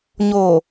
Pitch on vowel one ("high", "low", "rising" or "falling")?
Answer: low